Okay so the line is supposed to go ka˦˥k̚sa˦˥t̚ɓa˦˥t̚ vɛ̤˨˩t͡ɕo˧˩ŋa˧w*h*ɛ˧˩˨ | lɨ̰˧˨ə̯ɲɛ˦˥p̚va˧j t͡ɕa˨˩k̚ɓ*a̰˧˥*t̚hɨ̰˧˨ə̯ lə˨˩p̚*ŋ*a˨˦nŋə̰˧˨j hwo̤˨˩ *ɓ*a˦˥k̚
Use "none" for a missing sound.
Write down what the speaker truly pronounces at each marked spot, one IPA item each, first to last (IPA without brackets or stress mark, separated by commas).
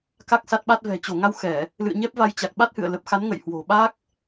x, a˦˥, x, ɓ